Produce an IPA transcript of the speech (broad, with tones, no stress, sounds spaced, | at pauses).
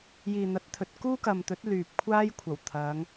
j iː˨ n̪ ɐ˨˥ t̚ t̪ʰ ɵ˨˥ t̚ k uː˥ k ɐ˨ m t̪ ɵ˨˥ t̚ l yː˨ p̚ kʷʰ aː˥ j kʷʰ ɐ˨˩ w t̪ʰ ɐ˨˧ ŋ